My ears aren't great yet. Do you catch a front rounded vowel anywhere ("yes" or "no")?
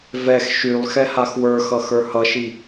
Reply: yes